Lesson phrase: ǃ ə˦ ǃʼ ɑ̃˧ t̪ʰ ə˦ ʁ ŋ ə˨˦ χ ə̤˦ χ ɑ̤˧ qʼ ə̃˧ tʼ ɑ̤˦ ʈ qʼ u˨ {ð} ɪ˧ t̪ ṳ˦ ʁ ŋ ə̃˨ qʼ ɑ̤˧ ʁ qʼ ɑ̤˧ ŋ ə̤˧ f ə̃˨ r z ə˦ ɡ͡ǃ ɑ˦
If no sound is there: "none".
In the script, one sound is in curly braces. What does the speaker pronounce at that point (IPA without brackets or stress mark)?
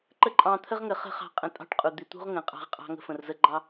d̪